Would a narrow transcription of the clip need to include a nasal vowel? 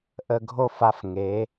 no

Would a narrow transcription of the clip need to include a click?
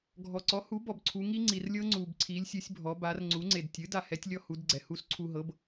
yes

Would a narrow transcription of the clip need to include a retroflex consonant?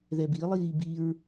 no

